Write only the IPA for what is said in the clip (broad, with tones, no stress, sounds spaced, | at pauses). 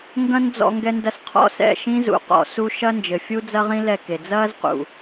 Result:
ŋ ɡ ɐ̃˦ n d͡z ɔ̰˧ ŋ ɡ ɛ˧ n d ɐ˧ s qʰ ɔ̰˦ s ɛ̰˦˨ ʃ ĩ˦ z ṵ˨ q ɔ̰˨ s u˧ ʃ ɐ˦ n d͡ʒ ɘ˨ fʲ u˦ d͡z ɐ˦ ʁ ĩ˦ l ɛ˦˨ k e˨ d͡z ɐː˦ z q ṵ˨